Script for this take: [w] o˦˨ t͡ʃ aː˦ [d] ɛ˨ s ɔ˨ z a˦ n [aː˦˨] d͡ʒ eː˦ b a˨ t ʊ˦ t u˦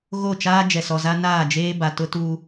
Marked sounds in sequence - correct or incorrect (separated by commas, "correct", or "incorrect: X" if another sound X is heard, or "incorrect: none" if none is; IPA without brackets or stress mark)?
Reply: incorrect: ɣ, incorrect: d͡ʒ, correct